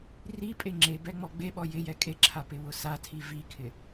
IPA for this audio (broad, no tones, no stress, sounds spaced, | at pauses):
r i pʼ e ŋ͡ǁ e b ɛ ŋ͡m ɔ ɡ͡b e ɓ ɔ j ɪ j ɛ kʼ e ǁʰ a p ɪ w ʊ s a tʰ i v i kʰ ɪ